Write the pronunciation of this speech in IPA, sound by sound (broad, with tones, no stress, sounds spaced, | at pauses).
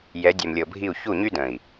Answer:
j ɛ˨˦ dʲ ɛ˨ m lʲ ɤ˨ bʱ i˦˨ u̯ ç u˦˨ ɲ y˦ d ə̃˨ i̯